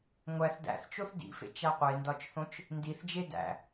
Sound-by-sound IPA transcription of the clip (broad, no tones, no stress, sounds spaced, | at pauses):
ŋʷ æ θ d æ̰ θ t͡ʃ o θ d ḭ f ḛ t͡ʃ æ qʷ e n d ɒ t͡ʃ θ õ t͡ʃ | n d i θ d͡ʒ e d æ̰